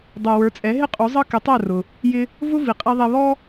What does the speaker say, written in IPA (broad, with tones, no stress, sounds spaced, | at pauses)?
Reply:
dˤ ɛ˩ w ə˞˩˥ t͡sʼ ɛ˩˥ ɦ ɪ˥ qʼ u˩˥ zˤ ʌ˥ k ɪ˩˥ tˤ æ˥˩ r ʊ˩ | j ɪ˧ | v ʊ˥ v i˩ qʼ i˧ ðˤ ɛ˧ β ɔ˥